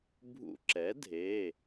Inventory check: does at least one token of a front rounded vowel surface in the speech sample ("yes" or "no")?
no